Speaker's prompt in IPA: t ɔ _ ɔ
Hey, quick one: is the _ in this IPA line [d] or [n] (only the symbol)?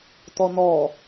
n